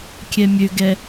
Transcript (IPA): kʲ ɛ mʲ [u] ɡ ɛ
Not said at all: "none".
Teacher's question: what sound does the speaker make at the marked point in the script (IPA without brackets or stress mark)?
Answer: ø